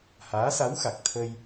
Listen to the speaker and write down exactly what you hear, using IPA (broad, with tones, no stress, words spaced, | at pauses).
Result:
haː˧˥sa˧˥wxa˨˩k̚t̪ʰə˧j